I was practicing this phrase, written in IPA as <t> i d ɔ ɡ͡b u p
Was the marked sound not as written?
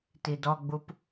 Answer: no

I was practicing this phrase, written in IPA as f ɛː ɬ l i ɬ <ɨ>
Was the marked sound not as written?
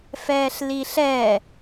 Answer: yes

